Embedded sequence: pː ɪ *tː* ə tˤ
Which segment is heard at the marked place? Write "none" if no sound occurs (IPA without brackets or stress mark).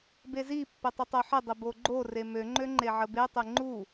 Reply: tˤ